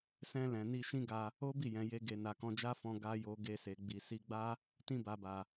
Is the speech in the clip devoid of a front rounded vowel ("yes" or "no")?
yes